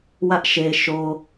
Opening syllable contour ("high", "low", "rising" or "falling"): high